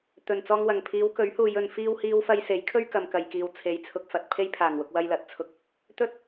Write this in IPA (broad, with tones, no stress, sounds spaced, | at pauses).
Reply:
t̪ ɵ˨˩ n t͡s ɔː˧ ŋ w ɐ˨˩ ŋ pʰ iː˨˧ w k ɵ˨˥ ɥ h uː˨ j ɵ˨˧ n f iː˥ w h iː˥ w f ɐ˥ j s e˨˥ j kʰ ɵ˥ ɥ k ɐ˨ m k ɐ˨ j k iː˨ w t͡sʰ e˨˧ j t͡sʰ ʊ˧ k̚ f ɐ˨ t̚ pʰ e˥ j pʰ aː˨˩ ŋ w ʊ˧ k̚ w ɐ˧ j l ɐ˨˥ t̚ t͡sʰ ʊ˨ k̚ | t̪ ɵ˥ t̚